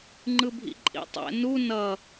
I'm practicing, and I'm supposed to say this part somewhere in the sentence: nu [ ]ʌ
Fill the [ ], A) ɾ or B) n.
B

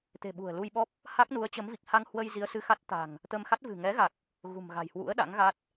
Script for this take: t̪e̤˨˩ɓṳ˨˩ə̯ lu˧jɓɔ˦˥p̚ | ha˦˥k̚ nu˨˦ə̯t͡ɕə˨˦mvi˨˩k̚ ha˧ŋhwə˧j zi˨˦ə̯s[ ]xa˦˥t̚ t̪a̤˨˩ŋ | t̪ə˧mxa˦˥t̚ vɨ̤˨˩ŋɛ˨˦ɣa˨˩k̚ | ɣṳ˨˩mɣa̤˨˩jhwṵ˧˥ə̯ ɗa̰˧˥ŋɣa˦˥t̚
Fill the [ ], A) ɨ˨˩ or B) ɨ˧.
B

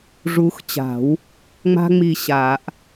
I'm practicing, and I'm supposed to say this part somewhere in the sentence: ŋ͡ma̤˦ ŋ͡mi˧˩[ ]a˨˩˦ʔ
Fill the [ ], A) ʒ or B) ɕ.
B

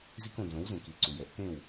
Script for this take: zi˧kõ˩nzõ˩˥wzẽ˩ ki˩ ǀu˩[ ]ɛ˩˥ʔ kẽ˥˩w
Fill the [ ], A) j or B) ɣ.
A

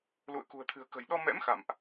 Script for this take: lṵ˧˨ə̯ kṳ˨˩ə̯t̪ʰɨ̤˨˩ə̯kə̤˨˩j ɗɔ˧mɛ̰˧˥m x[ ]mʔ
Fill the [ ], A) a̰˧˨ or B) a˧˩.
A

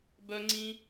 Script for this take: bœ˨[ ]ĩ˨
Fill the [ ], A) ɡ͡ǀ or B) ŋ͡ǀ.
B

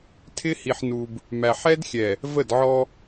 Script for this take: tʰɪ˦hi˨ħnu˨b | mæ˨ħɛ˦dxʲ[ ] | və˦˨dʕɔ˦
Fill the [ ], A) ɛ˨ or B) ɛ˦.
A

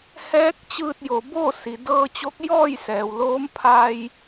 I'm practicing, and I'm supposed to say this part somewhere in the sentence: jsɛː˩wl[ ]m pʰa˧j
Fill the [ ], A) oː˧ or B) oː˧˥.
B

